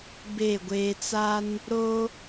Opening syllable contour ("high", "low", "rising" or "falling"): falling